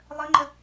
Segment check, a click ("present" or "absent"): present